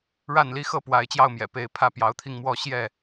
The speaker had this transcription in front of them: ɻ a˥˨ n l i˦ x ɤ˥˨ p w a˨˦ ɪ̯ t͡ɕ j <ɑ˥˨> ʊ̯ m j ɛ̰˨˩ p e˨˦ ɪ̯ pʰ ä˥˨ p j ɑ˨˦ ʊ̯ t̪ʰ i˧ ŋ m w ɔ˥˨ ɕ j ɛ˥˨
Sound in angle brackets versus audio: correct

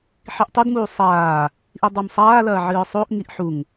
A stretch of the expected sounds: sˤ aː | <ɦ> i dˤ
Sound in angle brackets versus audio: incorrect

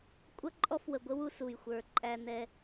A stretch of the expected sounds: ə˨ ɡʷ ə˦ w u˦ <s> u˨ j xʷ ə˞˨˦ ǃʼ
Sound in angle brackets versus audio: correct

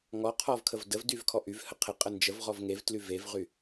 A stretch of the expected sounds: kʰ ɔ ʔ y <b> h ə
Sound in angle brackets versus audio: incorrect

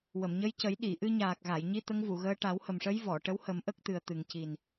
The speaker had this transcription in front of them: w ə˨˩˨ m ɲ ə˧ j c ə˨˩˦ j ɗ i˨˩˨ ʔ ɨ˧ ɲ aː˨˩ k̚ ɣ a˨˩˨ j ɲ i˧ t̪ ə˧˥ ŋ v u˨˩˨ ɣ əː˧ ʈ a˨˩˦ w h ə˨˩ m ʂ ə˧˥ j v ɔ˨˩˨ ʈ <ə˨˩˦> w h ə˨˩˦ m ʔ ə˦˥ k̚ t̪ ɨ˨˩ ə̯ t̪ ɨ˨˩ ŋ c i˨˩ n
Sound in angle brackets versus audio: incorrect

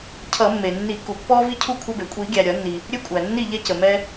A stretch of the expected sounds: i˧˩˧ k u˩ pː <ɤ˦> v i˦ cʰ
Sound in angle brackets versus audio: incorrect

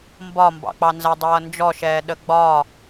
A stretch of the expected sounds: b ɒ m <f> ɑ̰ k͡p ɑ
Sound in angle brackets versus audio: incorrect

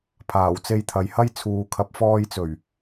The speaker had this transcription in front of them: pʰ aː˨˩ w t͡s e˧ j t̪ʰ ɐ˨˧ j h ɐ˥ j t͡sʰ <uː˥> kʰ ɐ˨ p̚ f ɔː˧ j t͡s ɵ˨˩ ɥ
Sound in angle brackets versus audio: incorrect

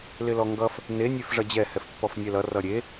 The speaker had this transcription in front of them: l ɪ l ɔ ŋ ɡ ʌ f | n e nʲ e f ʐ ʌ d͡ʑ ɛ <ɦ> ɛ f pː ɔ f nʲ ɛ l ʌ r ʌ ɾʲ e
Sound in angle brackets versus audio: incorrect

